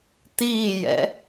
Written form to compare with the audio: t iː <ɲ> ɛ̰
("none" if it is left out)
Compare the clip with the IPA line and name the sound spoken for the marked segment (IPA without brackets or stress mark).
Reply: j